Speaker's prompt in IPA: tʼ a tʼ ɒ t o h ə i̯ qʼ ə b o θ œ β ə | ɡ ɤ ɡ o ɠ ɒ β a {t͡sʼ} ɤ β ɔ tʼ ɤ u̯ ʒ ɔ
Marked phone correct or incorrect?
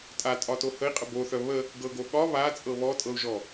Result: correct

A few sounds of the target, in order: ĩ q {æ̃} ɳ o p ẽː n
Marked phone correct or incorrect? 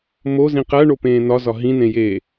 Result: incorrect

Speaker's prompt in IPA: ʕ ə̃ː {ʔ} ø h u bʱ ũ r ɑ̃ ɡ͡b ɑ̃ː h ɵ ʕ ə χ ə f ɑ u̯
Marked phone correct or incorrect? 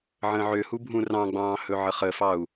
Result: incorrect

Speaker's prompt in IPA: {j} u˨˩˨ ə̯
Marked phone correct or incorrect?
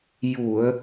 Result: correct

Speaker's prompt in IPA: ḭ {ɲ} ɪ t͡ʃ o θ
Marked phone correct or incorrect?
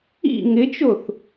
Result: incorrect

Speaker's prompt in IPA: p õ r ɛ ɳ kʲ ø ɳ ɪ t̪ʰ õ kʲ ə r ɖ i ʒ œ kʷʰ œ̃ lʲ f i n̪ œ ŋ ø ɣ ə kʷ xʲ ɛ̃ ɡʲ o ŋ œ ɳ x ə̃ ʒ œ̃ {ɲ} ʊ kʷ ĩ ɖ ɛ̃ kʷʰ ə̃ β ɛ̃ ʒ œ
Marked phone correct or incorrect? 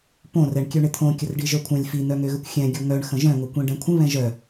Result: incorrect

